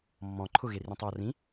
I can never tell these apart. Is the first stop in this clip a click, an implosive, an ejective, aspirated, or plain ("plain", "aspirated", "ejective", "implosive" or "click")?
click